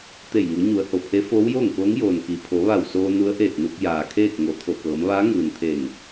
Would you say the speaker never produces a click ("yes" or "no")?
yes